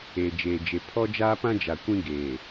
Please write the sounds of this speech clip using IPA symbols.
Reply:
eː˨ d͡ʒ eː˨ d͡ʒ e˨ pʰ ɔ˦ d͡ʒ aː˦ p ã˦ d͡ʒ a˨ kʷ ĩ˦ ɡ eː˨

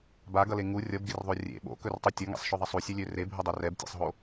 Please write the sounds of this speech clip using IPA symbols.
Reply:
b a ɡ ʌ l e ŋ u rʲ ʌ b ɡ ɪ r ðˤ o rʲ ḛ ɓ o̰ k ɵ r tˤ u tʲ ʌ ŋ ḛ sˤ ʃ ɵ ðˤ ʌ sˤ u sʲ ɵ lʲ ø r e bʱ ɵ dˤ ɵ r ɛ b tʲ ḛ sˤ ɦ o

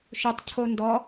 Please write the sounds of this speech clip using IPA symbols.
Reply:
ʃ ʊ tˤ cʰ o n d ɔ

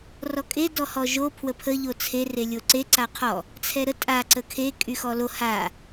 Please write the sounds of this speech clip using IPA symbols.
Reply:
r ɔ kʼ e d ɔ h ɔ ʒ o pʰ w ə pʰ ə ʎ o t͡sʰ e r e lʲ o ǀ e ǀ a qʰ ɔ | t͡sʰ ɛ ɾ ə tʼ a ǀ ə kʰ e kʼ y x ɔ l o h a

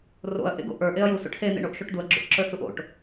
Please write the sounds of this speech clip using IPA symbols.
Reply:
r o̰ ɐ̯ ʔ ḛ ɡ o̰ ʔ ə˞ ʔ e ɐ̯ j u s o̰ ʈ s e n̪ ḛ ɳ o ʔ ʃ o ʈ d̪ u ɐ̯ ɡ͡ǁ o̰ ʈ ǁ ə˞ s u ʔ o̰ ʈ

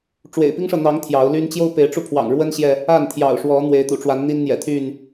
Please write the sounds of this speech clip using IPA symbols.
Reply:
ʈ͡ʂ w ḛ˨˩ ɪ̯ p i˦ ŋ ʂ ɤ˨ n̪ ɑ˨˦ ŋ t̪ʰ j ɑ˨˦ ʊ̯ l y˦ n t͡ɕ j o˦ ʊ̯ p e˨˦ ɪ̯ ʈ͡ʂ u˧ pʰ w ɑ̰˨˩ ŋ ɻ w ə˦ n ɕ j ɛ˨ | a˥˨ n t̪ʰ j ɑ̰˨˩ ʊ̯ ʂ w ɔ˨˦ n̪ w e˨˦ ɪ̯ t̪ ṵ˨˩ ʈ͡ʂ w a˨˦ n n̪ i˦ n n̪ j ɛ̰˨˩ t̪ʰ y˥˨ n

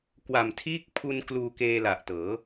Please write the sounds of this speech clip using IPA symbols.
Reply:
k w a˨˩ m tʰ iː˥˩ k̚ pʰ u˧ n k l uː˧ k eː˧ l a˨˩ ʔ t ɤː˩˦

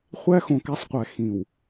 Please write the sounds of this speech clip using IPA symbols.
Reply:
χʷ æ˦ x õ˨ k æ˦ sˤ qʷ æ˨ x ĩ˨ w

